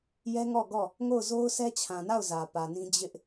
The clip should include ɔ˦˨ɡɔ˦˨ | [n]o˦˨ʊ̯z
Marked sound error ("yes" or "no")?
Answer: yes